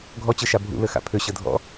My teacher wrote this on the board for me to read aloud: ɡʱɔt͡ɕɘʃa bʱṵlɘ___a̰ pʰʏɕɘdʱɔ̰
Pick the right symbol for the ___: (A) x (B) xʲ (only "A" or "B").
A